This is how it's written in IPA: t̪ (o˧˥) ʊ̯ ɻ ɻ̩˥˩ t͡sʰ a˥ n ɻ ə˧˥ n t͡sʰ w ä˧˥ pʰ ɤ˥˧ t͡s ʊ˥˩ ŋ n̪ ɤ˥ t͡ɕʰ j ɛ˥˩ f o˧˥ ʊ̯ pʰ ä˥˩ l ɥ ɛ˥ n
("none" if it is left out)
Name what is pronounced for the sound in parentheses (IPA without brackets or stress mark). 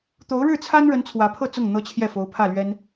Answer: o˧˥